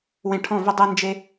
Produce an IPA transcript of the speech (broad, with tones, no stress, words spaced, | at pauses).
wẽ˧ʈʰɔ̃˦˨vʏ˦ dˤe˦nd͡ʒe˦